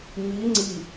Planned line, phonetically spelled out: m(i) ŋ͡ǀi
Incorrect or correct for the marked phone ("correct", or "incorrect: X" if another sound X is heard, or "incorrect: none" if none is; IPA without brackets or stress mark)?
correct